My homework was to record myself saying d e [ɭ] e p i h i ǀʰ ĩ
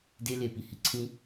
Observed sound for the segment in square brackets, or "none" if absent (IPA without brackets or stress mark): l